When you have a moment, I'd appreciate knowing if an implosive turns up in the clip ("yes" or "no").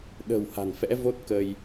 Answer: yes